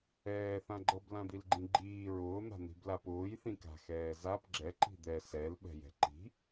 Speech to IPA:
ɛː θ ã ɡ͡ǃ ɤ b l ã d̪ i l ɡ͡ǃ ĩ ɡ͡ǃ iː ɹ ʊː n̪ a̤ n̪ i̤ b l a p ʊː j θ ĩ k a̤ x ɛː z a p ɡ͡ǁ ɛ ǃ i̤ d̪ ɛ s ɛ l ɓ ɛ̤ j ɛ̤ ǃ i̤

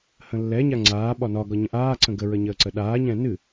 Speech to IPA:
h ə̃ lː ɛ ɲ a ŋ͡ǀ aː ɓ ɒ n ɒ ɡ ɒ ɲ ə̃ ʔ aː ǀ ə̃ ɡ ə ɹ ə ɲ əː ǀ ə ɗ aː ɲ ɛ̃ n ɨ

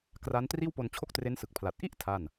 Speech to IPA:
k r a˦˥ n t r iː˥˩ w p o˧ n t͡ɕʰ o˥˩ k̚ t r e˦˥ n s ɯ˨˩ k̚ pʰ l a˨˩ t̚ ʔ i˥˩ ʔ tʰ a˥˩ n

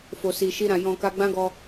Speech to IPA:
f o˨ s i˨ ʃ i˧ ɾ ã˨ j ɔ̃˨ k a˧ ɡ͡b ã˦ ɡ ɔ˧

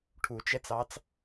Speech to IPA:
ʈʰ u t͡ʃ ɛ t͡s ɑ t͡s

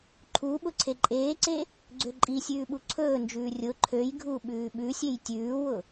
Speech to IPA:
ǃʰ u ɓ ʊ ǀʰ e ǃʼ eː ǀ e | ɡ͡ǀ ø ǃʼ i sʲ ʉː ɓ u ǀʰ ɵː n d͡ʒ ʉː rʲ ʊ ǃʰ ø j ɡʱ u ɓ ʉː ɓ ʉ sʲ e j tʲ ʉː w ʊ

